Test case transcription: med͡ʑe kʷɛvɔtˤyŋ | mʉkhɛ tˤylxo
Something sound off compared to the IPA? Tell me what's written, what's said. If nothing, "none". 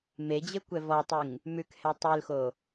none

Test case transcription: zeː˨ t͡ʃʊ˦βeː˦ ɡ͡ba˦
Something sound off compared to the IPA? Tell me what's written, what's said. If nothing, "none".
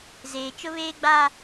none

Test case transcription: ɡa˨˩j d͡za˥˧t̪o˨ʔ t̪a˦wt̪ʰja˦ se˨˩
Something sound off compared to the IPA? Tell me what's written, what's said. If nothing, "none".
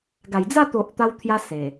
none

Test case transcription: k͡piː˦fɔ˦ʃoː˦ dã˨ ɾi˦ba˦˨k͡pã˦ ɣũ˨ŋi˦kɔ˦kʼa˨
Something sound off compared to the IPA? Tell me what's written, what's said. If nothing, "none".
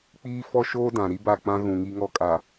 k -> ŋ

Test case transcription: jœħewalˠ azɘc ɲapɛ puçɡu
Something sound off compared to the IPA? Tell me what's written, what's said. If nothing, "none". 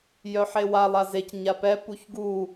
ɘ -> e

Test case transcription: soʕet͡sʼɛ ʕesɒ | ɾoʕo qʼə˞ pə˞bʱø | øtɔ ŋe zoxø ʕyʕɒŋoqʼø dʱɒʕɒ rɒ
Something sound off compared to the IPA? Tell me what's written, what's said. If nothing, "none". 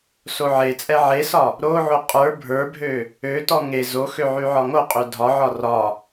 p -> bʱ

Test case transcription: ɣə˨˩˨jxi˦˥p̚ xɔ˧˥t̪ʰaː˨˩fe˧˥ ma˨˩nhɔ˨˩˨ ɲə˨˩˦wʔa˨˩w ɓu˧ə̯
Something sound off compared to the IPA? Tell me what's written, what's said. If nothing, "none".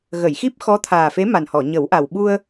none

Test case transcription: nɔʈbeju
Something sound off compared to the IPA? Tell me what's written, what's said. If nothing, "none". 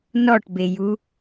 none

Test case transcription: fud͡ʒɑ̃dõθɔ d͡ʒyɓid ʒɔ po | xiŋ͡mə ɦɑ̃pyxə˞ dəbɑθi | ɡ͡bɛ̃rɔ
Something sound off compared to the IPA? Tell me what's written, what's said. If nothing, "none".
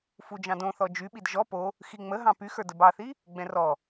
none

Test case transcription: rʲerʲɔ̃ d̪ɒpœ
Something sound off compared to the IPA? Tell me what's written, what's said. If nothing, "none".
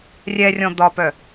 e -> ɛ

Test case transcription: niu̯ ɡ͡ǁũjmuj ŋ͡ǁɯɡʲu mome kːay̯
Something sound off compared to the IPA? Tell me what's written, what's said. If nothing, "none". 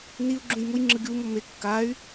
none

